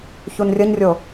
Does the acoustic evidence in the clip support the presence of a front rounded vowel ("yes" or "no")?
no